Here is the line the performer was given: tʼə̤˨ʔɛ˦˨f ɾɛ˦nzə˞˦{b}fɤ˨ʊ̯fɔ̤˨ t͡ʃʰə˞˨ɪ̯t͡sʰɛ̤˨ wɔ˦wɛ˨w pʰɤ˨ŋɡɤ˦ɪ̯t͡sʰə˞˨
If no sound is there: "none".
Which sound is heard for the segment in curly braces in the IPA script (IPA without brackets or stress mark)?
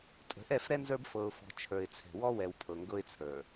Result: b